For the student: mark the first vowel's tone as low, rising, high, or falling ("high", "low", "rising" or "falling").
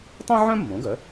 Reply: high